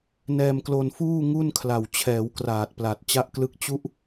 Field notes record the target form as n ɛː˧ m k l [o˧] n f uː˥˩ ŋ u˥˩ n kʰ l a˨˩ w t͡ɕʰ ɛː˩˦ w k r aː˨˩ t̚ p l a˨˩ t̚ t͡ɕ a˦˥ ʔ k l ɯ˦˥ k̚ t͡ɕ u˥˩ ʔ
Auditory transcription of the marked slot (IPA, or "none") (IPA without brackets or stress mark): o˧